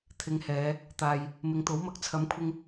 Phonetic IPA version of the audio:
t̪ʰɪ˨˧ŋhɛː˨˧ | t̪aː˨j | mɪ˨ŋt̪o˨˥wmɐ˧k̚ t͡sʰɐ˨˥mkʷʰɪ˧ŋ

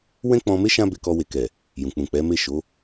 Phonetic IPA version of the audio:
wɛ̃˦k͡pɔ̃˧me˦ ʃã˦ be˧kɔ˧we˨kɛ˨ | jũ˨ k͡pũ˨ k͡pɛ˨˦me˦˨ʃo˨˦

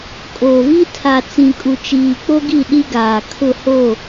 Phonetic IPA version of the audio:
kʼoː˨vi˦ tʰa˨t͡sĩ˨kʼu˨ t͡ʃiː˨k͡po˦ɡi˦˨ ɗi˦ɡaː˨ kʰʊ˦˨ ho˦˨

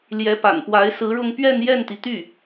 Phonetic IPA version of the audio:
ljɛ˧˥pa̰˨˩npwa˧˥ɪ̯ sɹ̩˧˥ɻʊ˥˧ŋ pɥɛ˥˧n jɛ˥˩nt̪i˩t̪y˥˩

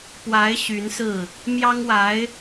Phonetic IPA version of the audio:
pwa˧˥ɪ̯ ɕy˧˥nsɹ̩˥˩ | mjɑ˥ŋwa˧˥ɪ̯

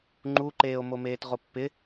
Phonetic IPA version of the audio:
ŋ͡ǃuǃeːo̯mo meːtʁopːɪ

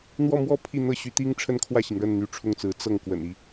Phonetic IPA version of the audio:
n̪wɔ˥˧mwɔ˥˧ pʰi˥˧n̪ɤ˥˩ɕy˧˥t̪i˥ŋ ʈ͡ʂʰə˥nkʰwä˥˩ɕi˩ŋɻə˥˩n n̪y˧˥ʈ͡ʂʰʊ˥˩ŋt͡sɹ̩˧˥ t͡sɤ˥˩ŋ kwə̰˨˩ni˦

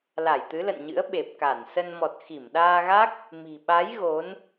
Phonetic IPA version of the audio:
la˧˩jt̪ɨ˨˦lə̰˧˨nɲɨ̰˧˥ə̯ ɓe˨˩p̚ka˧˩nsə˧n mɔ˨˩t̚xi˧˩mɗaː˧ɣa˦˥k̚ | mi̤˨˩ɓa˨˦j ɣo˨˦n

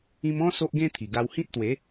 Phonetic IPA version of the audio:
ĩ˧mɔ̃˦ so˦ʔɡẽ˦t̪ʰi˨˩ɡa˧w hĩ˦t̚t̪we˨˦

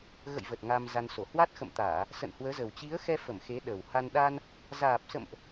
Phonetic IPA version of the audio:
ɣə̰˧˨j və˨˩t̚ ŋa˧mza˧nso˧˩ hwa˦˥t̚xə̰˧˨mt̪aː˧˩˨ | sə̰˧˨nhwəː˨˦zə˨˩w t͡ɕi˨˦ə̯xɛ˧fə˧˩m xe˨˦ɗə˨˩wha˧n ɗa˧n | zaː˨˩p̚sə̰˧˨mʔ

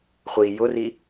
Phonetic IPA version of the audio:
χʷi jʊri

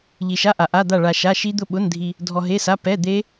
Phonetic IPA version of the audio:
ʎi˨˩ʃa˧˥˧ʔa˨˩ ʔa˧˥˧d̪a˥˨ ɭa˧ ʃa˧˥˧ ʃi˦˥d̪ʊ˥˨ɓʊ˧˥˧ndʱi˧ | dʱɔ˧ɦe˧˥˧sa˧˥˧ pɛ˧˥˧ d̪e˦˥

